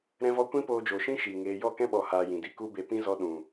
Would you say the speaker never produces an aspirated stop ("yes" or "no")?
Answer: yes